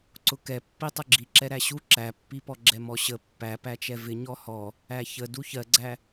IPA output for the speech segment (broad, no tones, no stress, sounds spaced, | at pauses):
ǀ ʊ k ɛ pː i tˤ ʊ ɡ͡ǁ i ǁ ɛ ɾ æ ɕ u ǁ æ pː i p ɔ ɡ͡ǁ ɛ m ɔ ɕ ə pː æ p æ t͡ʃ ɛ v ɪ ɲ ɔ h ɔ | æ ç ə d u ç ɜ ɡ͡ǀ æ